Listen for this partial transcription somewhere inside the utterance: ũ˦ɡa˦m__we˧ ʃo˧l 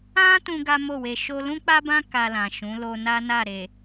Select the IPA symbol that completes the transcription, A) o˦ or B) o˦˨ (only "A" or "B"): B